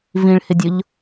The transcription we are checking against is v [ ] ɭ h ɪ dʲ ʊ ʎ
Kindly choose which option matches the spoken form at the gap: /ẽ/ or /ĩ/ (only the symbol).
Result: ĩ